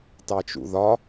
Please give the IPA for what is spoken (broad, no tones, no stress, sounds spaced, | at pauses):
t ɑ t͡ʃ ṵ ð ɒ